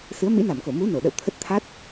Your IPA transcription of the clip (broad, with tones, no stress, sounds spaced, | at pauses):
s ɨ˨˦ ə̯ m ḭ˧˥ n a˧˩ m k o˧˩ m u˨˦ n o˧˩ ɗ ə̰˧˨ w t̪ʰ ə˦˥ t̚ t̪ʰ a˦˥ t̚